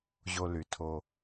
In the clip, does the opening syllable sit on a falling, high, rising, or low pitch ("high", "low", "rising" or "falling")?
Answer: low